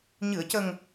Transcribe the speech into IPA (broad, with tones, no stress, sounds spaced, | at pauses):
ɲ ɨ˨˩˨ ə̯ c ə˨˩ ŋ